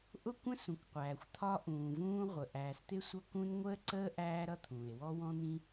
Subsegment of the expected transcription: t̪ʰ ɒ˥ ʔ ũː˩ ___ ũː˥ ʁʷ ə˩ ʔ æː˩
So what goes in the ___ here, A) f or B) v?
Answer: B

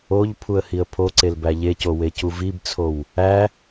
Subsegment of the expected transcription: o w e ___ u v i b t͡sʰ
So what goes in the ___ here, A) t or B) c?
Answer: B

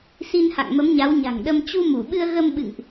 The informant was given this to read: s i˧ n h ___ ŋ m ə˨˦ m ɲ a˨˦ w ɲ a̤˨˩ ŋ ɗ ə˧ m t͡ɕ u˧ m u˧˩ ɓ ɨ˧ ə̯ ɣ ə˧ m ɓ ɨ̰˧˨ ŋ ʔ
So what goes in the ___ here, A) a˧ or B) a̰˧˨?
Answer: B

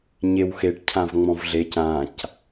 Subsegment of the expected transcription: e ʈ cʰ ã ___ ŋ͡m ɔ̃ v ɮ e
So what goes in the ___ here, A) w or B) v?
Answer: B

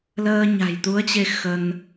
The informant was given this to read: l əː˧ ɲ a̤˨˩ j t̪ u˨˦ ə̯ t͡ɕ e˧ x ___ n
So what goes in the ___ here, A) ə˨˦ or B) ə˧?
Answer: B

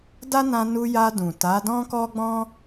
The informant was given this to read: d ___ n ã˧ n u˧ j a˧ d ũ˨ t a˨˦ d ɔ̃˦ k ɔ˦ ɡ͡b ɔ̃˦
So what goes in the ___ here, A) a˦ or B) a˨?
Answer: A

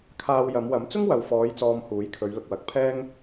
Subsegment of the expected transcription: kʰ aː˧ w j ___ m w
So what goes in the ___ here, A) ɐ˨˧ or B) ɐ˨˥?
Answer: A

